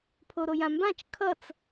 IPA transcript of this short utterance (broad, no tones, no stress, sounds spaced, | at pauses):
pʰ o ɾ o j ã m b ã t͡ʃ kʰ ʌ t͡s